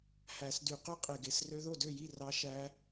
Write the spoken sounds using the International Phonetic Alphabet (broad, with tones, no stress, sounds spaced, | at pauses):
h æ˨˩˦ s d y˨˩˦ q y˦˥ qʼ e˨˩ ɡ e˨˩ s r ø˦˥ ð o˥˩ d ø˥˩ j i˥˩ r ɑ˦˥ ʃ æ˦˥